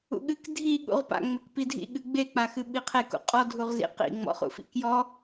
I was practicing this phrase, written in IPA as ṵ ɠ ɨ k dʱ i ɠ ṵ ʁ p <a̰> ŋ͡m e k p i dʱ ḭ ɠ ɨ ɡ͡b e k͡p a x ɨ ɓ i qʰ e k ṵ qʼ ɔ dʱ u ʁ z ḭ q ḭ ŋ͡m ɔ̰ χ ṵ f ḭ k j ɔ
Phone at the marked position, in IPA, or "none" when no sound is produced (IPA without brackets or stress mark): a̰